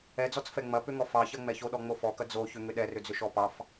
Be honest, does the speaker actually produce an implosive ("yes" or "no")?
yes